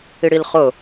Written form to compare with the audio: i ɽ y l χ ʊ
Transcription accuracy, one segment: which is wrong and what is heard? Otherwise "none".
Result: y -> i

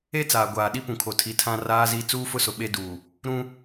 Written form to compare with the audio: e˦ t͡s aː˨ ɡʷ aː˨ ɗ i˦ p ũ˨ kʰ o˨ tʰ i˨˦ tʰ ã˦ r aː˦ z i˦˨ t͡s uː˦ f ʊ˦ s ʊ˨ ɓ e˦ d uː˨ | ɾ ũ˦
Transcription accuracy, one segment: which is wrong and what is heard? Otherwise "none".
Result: none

